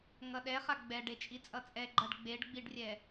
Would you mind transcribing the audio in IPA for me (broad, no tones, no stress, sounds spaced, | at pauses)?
ŋ ʌ ɗ ɛ χ a ɡ͡b ɛ ɖ e t͡ʃʼ i t͡sʼ ʌ t͡sʼ ɛ ɡ͡ǃ ʌ ɖ ɡ͡b e ɖ ɡ͡b i ɖ rʲ ɛ